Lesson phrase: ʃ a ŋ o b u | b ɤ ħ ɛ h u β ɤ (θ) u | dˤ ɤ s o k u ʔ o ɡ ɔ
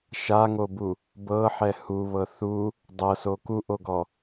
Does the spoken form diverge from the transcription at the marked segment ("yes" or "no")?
no